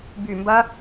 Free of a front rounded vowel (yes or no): no